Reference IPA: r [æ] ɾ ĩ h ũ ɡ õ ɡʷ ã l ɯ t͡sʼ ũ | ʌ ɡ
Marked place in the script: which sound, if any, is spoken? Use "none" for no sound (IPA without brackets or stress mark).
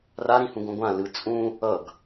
a